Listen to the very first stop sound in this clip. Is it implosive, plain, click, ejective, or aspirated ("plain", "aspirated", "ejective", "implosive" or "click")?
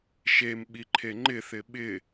implosive